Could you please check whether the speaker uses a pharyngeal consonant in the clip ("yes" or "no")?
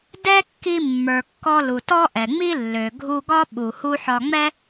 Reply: yes